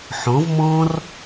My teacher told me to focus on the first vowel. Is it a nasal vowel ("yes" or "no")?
yes